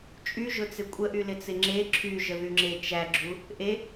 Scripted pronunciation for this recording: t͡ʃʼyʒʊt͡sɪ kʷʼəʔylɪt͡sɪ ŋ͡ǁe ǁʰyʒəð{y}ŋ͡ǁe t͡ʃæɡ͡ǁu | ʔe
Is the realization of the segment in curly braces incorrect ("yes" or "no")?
no